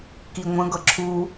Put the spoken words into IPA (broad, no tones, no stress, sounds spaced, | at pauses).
k i ŋʷ ə̃ ɡ ʌ ǁʰ u